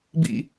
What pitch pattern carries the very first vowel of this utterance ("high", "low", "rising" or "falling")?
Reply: falling